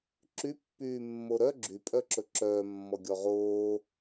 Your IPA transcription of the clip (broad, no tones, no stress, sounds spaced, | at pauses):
ǁ y pː yː mː o ɾ œ ɡ͡ǁ y pʼ œ ǁ ɵ ǁ œː mː ɔ ɡʲ ɔ ʁ oː